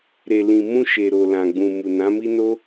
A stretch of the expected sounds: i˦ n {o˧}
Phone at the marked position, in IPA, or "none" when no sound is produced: o˦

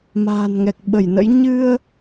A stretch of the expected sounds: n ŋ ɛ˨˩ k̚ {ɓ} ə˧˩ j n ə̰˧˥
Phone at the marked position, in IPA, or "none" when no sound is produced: ɓ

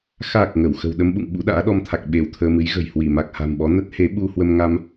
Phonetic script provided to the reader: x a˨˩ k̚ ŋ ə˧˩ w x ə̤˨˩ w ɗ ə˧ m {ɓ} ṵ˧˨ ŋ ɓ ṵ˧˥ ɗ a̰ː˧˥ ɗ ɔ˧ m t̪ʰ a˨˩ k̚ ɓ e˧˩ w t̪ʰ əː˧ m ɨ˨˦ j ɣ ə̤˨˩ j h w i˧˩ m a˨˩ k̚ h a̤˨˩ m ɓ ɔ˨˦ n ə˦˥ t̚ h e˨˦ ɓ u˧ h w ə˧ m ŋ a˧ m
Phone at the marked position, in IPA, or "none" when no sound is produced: ɓ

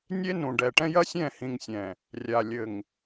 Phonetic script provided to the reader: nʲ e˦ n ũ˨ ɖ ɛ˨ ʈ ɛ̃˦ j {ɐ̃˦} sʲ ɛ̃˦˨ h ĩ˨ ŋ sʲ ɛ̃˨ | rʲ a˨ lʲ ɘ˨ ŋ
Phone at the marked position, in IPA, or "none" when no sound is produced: ɐ˦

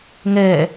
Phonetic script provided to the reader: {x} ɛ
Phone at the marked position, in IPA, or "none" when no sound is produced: ŋ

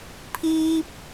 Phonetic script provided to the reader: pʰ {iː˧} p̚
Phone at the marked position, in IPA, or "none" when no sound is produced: iː˧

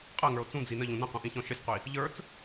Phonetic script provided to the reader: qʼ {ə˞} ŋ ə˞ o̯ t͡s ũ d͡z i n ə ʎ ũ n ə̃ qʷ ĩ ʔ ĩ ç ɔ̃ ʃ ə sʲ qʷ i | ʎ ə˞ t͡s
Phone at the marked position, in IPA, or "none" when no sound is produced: ɜ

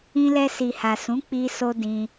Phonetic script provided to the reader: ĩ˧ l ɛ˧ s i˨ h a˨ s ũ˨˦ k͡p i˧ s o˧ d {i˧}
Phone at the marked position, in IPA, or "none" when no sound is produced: ĩ˧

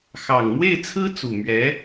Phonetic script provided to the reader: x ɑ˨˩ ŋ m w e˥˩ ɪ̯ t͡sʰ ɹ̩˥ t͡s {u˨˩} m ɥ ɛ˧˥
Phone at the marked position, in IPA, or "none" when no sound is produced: u˨˩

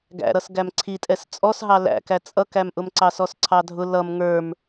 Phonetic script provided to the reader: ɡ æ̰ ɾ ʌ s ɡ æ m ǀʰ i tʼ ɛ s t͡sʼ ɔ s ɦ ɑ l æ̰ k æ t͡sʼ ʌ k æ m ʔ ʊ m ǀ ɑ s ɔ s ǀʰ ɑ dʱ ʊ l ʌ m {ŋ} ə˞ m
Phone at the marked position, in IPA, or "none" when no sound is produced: ŋ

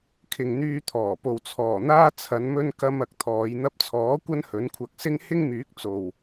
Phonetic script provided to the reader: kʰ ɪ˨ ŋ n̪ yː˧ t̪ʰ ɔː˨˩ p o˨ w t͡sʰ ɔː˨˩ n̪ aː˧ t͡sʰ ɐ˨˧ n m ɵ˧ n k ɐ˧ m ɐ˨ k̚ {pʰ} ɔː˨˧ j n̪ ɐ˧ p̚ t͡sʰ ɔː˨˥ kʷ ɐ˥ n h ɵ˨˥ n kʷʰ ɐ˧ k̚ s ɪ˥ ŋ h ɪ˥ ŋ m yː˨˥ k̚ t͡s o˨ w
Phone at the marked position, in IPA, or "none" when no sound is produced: t̪ʰ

